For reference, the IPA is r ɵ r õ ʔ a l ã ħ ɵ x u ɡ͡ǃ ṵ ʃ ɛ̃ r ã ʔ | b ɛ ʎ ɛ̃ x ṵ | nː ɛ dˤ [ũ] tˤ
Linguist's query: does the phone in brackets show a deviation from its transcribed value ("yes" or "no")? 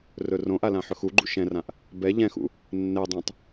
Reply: no